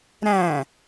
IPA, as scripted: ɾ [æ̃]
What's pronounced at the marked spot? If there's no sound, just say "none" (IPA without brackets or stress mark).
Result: æ̃